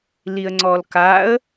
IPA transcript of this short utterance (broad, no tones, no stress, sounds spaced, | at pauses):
l i ə̯ ŋ͡ǀ ɔ l k a ə̯